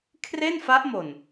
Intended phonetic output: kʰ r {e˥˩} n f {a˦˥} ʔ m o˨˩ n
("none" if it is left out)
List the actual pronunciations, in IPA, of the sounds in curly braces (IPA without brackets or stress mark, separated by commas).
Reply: e˥˩, a˦˥